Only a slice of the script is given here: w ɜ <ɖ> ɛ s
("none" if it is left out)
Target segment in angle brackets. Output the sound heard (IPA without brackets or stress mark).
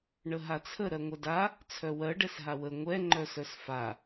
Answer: ɖ